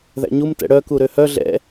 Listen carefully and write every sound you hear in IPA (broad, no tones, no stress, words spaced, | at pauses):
ðæ̰ɲumtɛ̰ ɽœku ɾøhœ ɮɛ̰